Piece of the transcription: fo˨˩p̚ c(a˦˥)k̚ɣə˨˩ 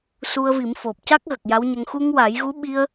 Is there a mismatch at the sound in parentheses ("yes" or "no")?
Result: no